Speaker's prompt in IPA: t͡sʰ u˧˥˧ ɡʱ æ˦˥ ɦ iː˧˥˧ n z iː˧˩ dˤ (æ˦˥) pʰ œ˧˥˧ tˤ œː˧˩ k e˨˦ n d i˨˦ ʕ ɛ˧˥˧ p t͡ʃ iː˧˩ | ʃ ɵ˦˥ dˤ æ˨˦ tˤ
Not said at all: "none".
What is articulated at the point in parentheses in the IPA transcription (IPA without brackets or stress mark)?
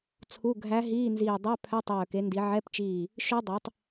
æ˧˥˧